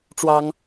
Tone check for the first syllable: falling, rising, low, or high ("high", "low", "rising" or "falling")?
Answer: high